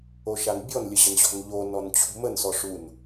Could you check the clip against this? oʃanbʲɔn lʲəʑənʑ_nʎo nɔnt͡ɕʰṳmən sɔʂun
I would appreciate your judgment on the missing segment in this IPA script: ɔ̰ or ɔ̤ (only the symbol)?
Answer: ɔ̤